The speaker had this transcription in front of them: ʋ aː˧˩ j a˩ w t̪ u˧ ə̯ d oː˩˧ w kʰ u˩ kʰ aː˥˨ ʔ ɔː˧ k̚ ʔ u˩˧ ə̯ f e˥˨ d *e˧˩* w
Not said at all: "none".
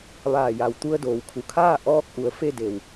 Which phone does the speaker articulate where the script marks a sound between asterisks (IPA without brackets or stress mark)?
e˧˩